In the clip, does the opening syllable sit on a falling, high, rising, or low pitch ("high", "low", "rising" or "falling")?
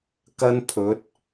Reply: high